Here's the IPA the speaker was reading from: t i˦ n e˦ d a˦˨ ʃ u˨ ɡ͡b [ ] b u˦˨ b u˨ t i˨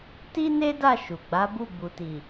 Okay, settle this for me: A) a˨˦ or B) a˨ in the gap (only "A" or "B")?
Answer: A